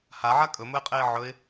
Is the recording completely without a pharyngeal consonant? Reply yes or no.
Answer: no